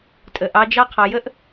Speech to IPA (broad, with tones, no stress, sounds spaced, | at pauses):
tʼ ə˨ ʔ ɑ˧ d͡ʒ ɑ˦ qʰ ɑ˧ j ə˦ ʔ